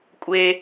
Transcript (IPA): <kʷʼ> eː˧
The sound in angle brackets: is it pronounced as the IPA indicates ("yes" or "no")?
yes